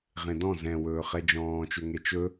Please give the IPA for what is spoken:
ʁ ẽ d ɔ̃ z ɛ̃ w ɵː χ ɛ d͡ʒ ɔ̃ː t͡ʃ ø ŋ e t͡ʃ ɵ

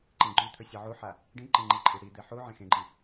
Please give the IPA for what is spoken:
ǃ ẽ ɡ͡ǃ ʉ t̪ʰ ɵ sʲ ɐ ʕ u ħ a | ɖ ĩ ǃ ẽ ŋ͡ǃ i ǃʼ i ɽ i d̪ e ħ u ʕ ẽ x ẽ ɡ͡ǃ ĩ

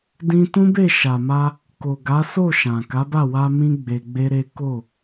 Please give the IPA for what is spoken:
d ĩ˧ t ũ˦ b e˦˨ ʃ a˨ m a˧ | k o˨ ɡ a˨˦ s o˦˨ ʃ ã˨ k a˨˦ b a˦˨ w a˧ m ĩ˦ ɡ͡b e˧ ɡ͡b e˦ ɾ e˦ k o˦˨

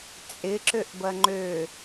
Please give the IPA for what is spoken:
t͡sʼ ɪ ǁ ø ʔ b ɐ ŋ͡ǃ ø

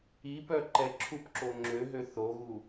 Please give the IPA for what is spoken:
i p œ ǃ ɛ ǁʰ u p ǁ o ŋ͡ǁ ø ɦ ø θ o ɣ u

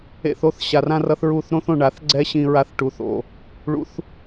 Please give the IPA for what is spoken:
ḛ˧ θ o˦ θ ɕ a˨ r ã˦ r ʌ˦ θ ɹ u˦˨ θ ɾ õ˦ θ õ˧ ɳ a˨˦ θ ɡ͡ǀ ɛ˦ ɕ ĩ˧ ɹ a˧ θ ʈ u˨ θ o̰˨ | ɭ ṵ˦ θ

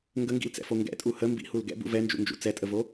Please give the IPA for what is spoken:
ŋ ɡ ə ŋ ɡ ḭ l t͡s ɛ̰ f o ŋ ɡ ɛ̰ tʼ u h ə m b ḭ h u l ɡ ɛ̰ b ṵ v ɛ n d͡ʒ ṵ n d͡ʒ ṵ t͡s ɛ tʼ ə v o

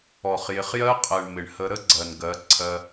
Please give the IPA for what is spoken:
ɔ˨ χ j ɪ˨ χ j ɜ˦ qʼ ɜ˨ ɳ m ɪ˨ ɳ h ə˧ ɾ ə˦ ɡ͡ǀ ɜ˨ n ɡ ɜ˨˦ ǀʰ ɜ˧

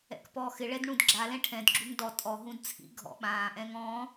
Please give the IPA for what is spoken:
ɛ̰ k p ɔː x ɪ ɭ ɛ d ɳ ũ d ɡ͡ǁ a l ɛ̃ ʈʰ ɛ̃ d ɡ͡ǁ u ŋ d ɔ tʼ ɔ ɦ ũ d t͡sʰ ḭ ɡʱ ɔ̰ ɓ ãː ʔ ɛ̃ː ŋ ɔ̃ː

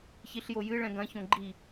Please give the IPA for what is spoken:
ç i ɬ j o j ɨ ɭ ɛ̃ ɡ ɐ̃ ç õ ɡ͡ǃ i

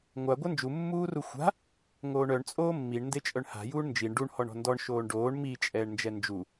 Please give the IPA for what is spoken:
ŋʷ a ɡʷ œ n d͡ʒ u mː uː r u xʷ a̤ | ŋ oː ɳ œ ɳ t͡sʼ oː mː i ɳ n d e t͡ʃʼ œ ɳ h a̤ j uː ɳ n d͡ʒ i ɳ ɖ u ɳ h ɔ ɳ ɔ̤ n d ɔ ɳ ʃ oː ɳ ɖ oː ɳ m i t͡ʃʼ ɛː ɳ n d͡ʒ ɛ n d͡ʒ u

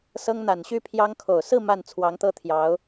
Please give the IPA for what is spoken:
s ɤ˥ ŋ n̪ a˨˩ n ɕ y˥ pʰ j ɑ˥ ŋ kʰ o˨˩ ʊ̯ s ɹ̩˥˧ m a˥˩ n t͡sʰ w ɑ˧˥ ŋ t̪ ɤ˥ t̪ʰ j ɑ˧˥ ʊ̯

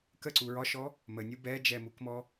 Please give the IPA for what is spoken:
k ə ǀ u ɹ ɒ ʃ ɔ | m ə nʲ u b ɛ d͡ʒ ɛ m u k m ɔ

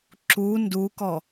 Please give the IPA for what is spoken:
ǁ u n d u k ɔ

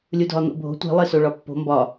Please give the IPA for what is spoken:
lʲ u dʱ ɒ n̪ o̰ bʱ o̤ tʷ i̤ lˠ e s o ɭ ɒ pː o̤ m b ɒ

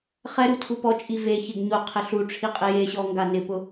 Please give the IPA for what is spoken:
χ ɛ ɾ u tʰ u p ɔ t͡ʃʼ i v e ç e ɡ ɲ o qʰ ɪ ɬ u ʈ͡ʂʰ i qʼ ɪ j e ɕ ɔ ŋ ɡ a n ɪ p ʊ

